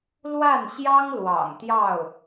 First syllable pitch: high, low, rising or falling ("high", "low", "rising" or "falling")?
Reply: falling